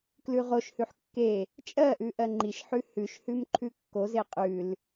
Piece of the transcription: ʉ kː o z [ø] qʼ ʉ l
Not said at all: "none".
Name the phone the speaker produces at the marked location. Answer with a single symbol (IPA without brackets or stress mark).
e